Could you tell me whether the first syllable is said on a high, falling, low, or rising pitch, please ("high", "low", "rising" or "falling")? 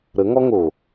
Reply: rising